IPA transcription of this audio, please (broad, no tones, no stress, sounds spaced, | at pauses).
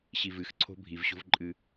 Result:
ɕ i v ɨ x ǀʰ o̤ bʱ i v ɕ o̤ v ǃʼ ɨ